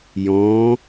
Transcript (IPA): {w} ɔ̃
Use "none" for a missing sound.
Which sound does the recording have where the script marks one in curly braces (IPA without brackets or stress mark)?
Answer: j